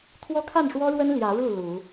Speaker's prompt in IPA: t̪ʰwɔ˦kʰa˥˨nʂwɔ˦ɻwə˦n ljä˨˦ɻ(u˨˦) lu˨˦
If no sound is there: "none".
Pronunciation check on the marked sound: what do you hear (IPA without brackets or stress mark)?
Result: u˥˨